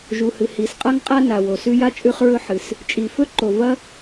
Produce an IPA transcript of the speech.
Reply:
ʒ u˩ h ɨ˩ h i˩ s qʼ a˥ ŋ qʼ a˥ n a˩ w o˩ s ʉ˥ j a˥ t͡ʃʼ ʉ˥ χ ɹ ɵ˥ ħ ɨ˩ s | t͡ʃʼ i˩ f ɵ˥ ǃ o˩ v ɐ˥

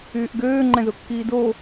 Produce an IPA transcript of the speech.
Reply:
yː ʔ ɡ øː ŋ͡ǃ ɛ̃ z o kː iː d o

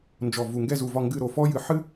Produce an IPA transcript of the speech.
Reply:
n d͡ʒ ɔ˧˩ v u˧˩ ŋ ɡ ɛ˥˧ z u˧˩ v ɒ˥˧ ŋ ɡ ɨ˥˧ ɾ o˧˩ f ɔ˥ j ɨ˧ ħ ɨ˥

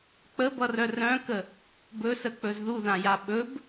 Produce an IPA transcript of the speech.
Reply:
k͡p ə b ʌ r œ r œ̃ k ə | b ɵ s ə k͡p ɵ z ð u ð ã j a ɓ ɵ b

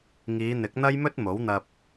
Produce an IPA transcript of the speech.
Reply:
ŋ iː˨˧ n̪ ɪ˨˥ k̚ n̪ ɐ˥ j m ɵ˥ t̚ m o˨˥ w n̪ ɐ˧ p̚

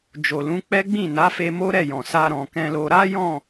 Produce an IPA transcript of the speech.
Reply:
d͡ʒ o˨ l ũ˨˦ k͡p ɛ˦ ɡ͡b ĩ˦˨ n a˨˦ f e˧ m o˦ ɾ ɛ˦˨ j ɔ̃˨ s a˧ ɾ ɔ̃˨ k ɛ̃˧ l o˧ ɾ a˦ j ɔ̃˦˨

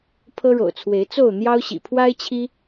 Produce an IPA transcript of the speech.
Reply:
pʰ ɤ˦ ɻ o̰˨˩ ʊ̯ t͡sʰ w e˨˦ ɪ̯ t͡s o˥˨ ʊ̯ n̪ j ɑ˦ ʊ̯ ɕ ḭ˨˩ pʰ w a˦ ɪ̯ t͡ɕʰ i˦

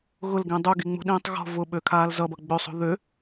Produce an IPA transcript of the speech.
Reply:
ɣ ʊ l ɡ ĩ dˤ u ɡ i ŋ͡m ṳ ɗ ĩː tˤ ɣ ɔ̤ v ʊ ɓ ø kʰ aː l z ʌ b ʌ ɡ͡b ø sˤ ṳ ð ø

